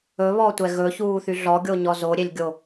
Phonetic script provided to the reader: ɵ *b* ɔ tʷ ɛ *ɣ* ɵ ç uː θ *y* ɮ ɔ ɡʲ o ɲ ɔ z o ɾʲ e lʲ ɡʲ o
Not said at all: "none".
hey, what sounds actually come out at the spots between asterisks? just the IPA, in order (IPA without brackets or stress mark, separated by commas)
β, ɣ, y